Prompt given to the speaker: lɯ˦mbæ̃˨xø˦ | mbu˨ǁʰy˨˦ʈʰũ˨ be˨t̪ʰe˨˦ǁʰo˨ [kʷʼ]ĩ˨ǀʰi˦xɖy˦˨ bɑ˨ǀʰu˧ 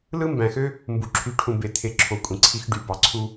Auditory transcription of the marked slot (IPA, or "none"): kʷʼ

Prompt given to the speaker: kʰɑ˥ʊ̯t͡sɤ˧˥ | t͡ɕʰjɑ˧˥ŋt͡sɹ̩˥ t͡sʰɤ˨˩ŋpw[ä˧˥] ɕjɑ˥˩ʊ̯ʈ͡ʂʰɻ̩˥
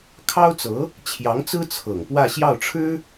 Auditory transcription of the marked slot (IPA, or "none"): ä˥˧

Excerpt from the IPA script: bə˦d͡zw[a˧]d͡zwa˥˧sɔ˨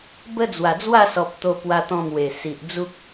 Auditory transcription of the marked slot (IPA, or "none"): a˨˩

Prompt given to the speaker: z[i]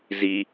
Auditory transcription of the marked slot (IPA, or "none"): i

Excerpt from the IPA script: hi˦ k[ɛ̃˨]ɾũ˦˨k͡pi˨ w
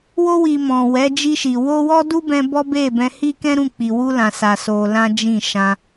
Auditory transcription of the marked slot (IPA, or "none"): ɛ̃˦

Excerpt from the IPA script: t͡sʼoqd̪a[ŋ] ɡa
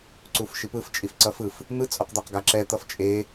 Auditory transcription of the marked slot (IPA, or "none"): q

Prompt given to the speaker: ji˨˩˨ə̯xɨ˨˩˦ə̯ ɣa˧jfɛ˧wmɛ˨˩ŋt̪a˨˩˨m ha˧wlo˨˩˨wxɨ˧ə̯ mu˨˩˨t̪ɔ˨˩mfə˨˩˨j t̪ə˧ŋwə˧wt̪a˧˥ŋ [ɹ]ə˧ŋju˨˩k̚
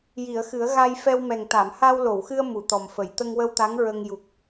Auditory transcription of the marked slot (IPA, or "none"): ɹ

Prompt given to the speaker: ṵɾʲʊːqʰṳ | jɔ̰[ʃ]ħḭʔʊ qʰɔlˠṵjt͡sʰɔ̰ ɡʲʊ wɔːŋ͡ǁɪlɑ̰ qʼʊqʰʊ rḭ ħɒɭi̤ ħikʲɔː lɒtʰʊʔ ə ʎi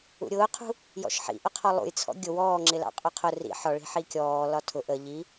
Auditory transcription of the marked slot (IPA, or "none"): ʃ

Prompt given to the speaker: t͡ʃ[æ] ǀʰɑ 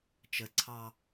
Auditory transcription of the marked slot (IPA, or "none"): ə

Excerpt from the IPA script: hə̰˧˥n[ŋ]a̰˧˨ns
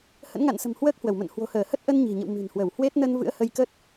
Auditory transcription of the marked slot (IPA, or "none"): ŋ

